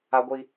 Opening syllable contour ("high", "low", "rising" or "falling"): high